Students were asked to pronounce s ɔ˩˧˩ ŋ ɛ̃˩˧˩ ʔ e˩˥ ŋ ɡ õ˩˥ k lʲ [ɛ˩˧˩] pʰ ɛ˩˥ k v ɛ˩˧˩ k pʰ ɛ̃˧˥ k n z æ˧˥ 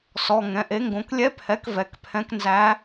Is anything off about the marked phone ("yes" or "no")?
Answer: yes